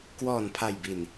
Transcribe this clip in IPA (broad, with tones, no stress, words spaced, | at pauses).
kwɔː˨˩npʰa˨˩jbi˨˩n